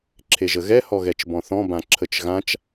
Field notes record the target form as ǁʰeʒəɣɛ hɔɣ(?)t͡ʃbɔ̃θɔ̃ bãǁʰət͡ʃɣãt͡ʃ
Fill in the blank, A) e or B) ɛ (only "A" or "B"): B